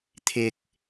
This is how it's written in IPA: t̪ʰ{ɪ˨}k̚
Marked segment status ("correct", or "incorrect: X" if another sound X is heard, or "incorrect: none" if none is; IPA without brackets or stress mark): correct